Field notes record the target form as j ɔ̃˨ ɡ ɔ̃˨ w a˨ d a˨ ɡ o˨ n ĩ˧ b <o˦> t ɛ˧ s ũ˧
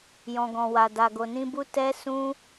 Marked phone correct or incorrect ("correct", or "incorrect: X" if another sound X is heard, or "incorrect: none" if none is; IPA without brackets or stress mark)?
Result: incorrect: u˦